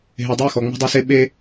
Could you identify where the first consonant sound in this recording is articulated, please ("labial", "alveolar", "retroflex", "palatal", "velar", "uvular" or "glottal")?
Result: glottal